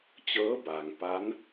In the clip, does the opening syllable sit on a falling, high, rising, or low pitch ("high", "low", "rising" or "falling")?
rising